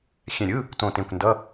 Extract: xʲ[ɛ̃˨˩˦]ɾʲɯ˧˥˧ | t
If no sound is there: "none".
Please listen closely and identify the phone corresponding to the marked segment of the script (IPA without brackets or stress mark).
ɛ̃˧˩